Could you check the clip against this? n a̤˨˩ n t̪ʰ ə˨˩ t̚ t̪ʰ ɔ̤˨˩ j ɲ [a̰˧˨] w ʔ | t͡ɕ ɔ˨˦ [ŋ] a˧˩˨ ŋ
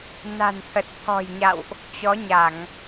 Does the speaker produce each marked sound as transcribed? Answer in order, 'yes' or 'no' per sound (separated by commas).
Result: yes, no